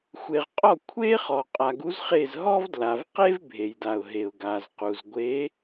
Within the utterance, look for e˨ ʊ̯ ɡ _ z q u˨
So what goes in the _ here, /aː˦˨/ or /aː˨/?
aː˨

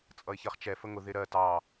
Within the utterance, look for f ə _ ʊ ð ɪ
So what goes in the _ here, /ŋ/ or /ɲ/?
ŋ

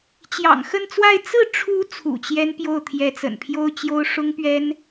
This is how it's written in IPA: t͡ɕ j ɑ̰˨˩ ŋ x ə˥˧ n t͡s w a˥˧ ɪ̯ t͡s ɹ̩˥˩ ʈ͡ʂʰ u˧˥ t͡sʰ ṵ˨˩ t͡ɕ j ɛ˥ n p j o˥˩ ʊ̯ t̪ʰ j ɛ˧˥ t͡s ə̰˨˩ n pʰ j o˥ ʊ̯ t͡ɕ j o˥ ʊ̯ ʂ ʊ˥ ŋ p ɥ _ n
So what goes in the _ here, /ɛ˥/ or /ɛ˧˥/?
ɛ˥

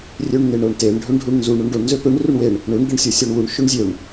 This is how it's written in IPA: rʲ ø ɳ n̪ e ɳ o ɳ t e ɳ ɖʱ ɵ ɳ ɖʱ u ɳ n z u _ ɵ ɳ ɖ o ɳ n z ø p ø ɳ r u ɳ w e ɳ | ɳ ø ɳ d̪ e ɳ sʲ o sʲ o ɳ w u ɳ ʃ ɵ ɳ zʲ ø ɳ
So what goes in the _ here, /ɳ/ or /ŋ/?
ɳ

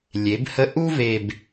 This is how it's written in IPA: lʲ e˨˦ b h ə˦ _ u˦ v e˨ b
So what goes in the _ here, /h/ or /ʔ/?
ʔ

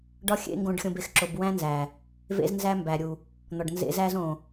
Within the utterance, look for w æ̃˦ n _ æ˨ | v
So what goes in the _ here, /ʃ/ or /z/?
z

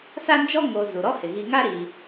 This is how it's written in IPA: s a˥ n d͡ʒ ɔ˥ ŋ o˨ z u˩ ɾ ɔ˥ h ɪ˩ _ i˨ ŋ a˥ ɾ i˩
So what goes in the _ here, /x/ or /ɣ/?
ɣ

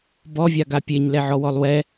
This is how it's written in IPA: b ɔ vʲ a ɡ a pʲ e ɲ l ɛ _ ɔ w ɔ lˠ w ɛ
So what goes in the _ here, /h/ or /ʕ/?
ʕ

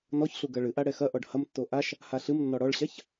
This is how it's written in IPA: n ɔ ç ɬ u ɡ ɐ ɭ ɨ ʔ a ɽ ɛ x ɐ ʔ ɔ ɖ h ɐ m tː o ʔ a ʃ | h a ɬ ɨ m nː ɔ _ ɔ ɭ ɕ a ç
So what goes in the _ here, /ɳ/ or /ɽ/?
ɽ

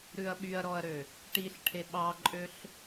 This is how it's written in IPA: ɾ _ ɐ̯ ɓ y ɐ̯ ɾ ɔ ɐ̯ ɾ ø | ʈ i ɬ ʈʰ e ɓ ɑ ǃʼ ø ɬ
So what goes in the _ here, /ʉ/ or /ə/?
ʉ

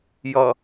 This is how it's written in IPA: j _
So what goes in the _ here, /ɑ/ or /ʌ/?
ʌ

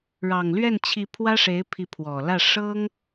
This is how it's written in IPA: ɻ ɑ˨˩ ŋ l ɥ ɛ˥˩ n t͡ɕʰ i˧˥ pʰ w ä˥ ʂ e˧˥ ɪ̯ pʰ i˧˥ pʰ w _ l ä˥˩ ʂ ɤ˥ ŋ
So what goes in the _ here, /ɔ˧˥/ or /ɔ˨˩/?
ɔ˨˩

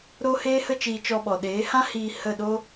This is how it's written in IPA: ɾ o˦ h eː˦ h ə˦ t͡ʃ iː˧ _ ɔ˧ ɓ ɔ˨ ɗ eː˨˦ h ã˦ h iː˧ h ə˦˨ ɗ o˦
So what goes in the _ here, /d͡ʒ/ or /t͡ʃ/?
t͡ʃ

